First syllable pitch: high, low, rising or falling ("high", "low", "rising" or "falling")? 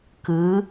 rising